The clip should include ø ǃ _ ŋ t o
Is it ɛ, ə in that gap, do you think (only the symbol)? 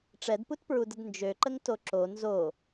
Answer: ə